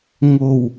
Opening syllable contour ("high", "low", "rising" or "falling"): low